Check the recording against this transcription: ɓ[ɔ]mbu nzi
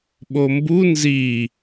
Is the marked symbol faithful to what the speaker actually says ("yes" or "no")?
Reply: no